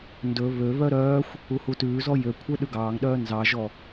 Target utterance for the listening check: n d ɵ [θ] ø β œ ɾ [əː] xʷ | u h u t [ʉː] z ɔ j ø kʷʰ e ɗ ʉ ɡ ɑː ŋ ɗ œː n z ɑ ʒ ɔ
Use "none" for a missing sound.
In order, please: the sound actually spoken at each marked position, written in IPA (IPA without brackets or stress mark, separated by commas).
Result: β, œː, ʉː